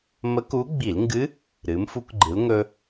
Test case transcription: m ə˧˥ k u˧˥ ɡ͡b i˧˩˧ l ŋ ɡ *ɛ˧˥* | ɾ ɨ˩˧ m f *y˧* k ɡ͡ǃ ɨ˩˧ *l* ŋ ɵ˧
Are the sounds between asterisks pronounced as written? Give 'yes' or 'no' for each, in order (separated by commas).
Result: no, no, yes